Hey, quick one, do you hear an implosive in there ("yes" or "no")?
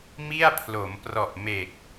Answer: no